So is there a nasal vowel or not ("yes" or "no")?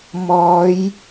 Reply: no